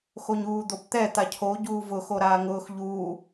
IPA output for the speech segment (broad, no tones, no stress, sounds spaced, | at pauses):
x o ɲ uː d̪ o p t̪ ɛ t̪ a cʰ o ɟ uː v ʊ x o ɾ aː ŋ ʊː x ʎ uː